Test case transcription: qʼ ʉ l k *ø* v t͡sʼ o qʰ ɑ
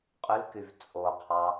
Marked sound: incorrect: y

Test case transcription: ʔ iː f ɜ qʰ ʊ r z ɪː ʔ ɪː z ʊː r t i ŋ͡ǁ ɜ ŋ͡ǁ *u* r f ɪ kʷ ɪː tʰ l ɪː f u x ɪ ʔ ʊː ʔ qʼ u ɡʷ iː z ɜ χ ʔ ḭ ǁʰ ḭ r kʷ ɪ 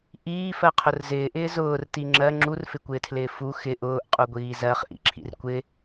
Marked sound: correct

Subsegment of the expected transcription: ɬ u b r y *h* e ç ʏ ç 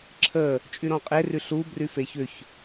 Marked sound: incorrect: f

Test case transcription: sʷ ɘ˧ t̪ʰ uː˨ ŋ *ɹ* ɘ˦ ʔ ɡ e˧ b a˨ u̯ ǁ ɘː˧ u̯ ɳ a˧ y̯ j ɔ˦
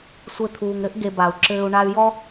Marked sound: incorrect: ɾ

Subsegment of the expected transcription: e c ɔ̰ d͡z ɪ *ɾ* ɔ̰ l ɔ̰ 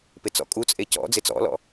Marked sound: incorrect: t͡s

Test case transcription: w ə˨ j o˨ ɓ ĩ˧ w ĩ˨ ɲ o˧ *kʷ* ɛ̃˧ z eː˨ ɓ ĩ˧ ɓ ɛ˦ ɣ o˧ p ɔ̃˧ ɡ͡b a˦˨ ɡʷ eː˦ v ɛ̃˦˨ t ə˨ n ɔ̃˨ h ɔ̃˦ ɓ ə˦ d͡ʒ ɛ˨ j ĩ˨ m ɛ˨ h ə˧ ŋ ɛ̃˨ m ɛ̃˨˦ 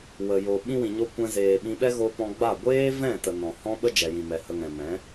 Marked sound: correct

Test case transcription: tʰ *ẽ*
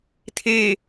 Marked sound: incorrect: e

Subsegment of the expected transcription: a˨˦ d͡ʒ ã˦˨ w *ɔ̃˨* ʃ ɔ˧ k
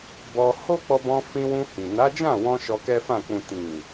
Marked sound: incorrect: ɔ̃˧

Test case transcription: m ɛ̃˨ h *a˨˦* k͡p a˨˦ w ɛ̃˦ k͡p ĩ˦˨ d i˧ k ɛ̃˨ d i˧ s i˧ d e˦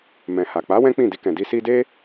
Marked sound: incorrect: a˨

